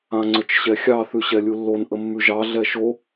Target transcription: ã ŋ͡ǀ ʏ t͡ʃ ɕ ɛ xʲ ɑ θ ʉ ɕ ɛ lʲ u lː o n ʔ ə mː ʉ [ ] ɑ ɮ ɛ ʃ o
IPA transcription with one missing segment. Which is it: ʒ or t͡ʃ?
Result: ʒ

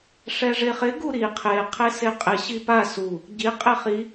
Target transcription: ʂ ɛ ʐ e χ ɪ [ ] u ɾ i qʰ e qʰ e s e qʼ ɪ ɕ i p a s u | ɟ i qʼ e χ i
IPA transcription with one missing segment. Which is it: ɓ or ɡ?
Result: ɡ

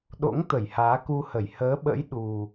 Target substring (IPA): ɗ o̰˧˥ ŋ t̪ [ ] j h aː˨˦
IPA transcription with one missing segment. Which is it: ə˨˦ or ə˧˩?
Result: ə˧˩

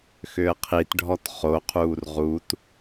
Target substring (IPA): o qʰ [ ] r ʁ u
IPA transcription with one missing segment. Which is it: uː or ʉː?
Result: uː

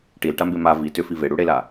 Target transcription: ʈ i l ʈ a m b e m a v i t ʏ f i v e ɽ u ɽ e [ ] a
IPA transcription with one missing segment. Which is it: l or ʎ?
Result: l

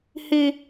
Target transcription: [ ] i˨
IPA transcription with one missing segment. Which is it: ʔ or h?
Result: h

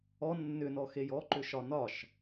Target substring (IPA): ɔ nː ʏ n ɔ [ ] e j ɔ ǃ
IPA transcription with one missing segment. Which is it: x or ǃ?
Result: x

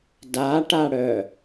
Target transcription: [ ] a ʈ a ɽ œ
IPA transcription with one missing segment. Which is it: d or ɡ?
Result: d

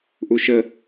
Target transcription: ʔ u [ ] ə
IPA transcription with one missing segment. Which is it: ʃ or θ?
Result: ʃ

